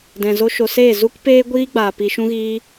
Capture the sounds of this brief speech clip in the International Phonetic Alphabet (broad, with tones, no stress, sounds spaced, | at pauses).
d ɛ̃˨ z o˦ ʃ o˨ s eː˦˨ z u˦ k p eː˦ ɡʷ iː˦ ɡ͡b aː˨ p i˧ ʃ ũ˧ ɣ iː˧